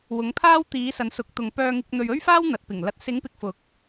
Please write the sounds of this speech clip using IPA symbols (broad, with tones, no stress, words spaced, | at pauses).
wʊ˨˧ŋpʰaː˥w t̪iː˨˥sɐ˨˧nsʊ˨˥k̚t̪ʊ˨ŋ pœː˧ŋɪ˧k̚ n̪ɵ˨ɥɵ˥ɥfaː˥w n̪ɐ˨˥t̚pɪ˨˩ŋ lɐ˨t̚sɪ˨˥ŋ pɪ˨k̚fʊ˨˥k̚